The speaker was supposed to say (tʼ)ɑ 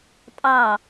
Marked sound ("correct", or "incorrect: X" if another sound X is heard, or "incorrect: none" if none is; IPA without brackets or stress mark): correct